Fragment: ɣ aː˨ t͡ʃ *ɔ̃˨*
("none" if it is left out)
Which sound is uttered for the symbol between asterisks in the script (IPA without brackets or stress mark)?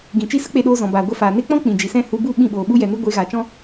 ɔ̃˦